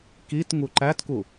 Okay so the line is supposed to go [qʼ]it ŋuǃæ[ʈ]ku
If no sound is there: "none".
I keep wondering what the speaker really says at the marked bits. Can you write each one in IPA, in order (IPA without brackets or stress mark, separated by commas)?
k, t